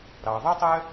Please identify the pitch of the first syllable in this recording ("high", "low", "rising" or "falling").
low